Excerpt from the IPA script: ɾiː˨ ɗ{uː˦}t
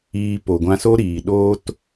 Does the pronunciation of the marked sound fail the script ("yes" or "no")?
yes